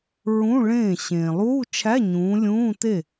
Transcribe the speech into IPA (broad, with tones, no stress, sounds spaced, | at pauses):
ɹ ũ˧˥˧ ɭ ẽː˥˩ ɕ ẽː˩ lˠ uː˧˥˧ t͡ʃʰ æ˧˥˧ ɲ ũː˨˦ lʲ ũː˧˥˧ t e˥˩